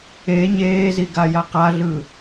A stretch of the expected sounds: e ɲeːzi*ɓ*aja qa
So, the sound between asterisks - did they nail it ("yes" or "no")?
no